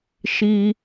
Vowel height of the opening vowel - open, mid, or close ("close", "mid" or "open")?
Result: close